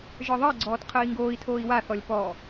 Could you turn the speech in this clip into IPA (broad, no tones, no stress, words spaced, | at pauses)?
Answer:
ʒə˞ðˤɜɡ͡ǀɔːt qʰəːi̯ŋɡoːi̯tʰoːi̯ waθɔlʲ pɔ